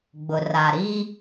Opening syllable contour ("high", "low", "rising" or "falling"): low